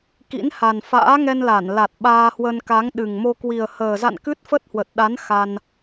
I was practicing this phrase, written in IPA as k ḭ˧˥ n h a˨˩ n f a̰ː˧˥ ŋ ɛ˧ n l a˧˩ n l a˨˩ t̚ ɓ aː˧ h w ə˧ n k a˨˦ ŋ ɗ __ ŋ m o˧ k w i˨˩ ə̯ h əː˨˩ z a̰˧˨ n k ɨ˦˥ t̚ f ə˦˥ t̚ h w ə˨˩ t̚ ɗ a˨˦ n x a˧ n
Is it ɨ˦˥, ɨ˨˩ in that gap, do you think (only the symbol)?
ɨ˨˩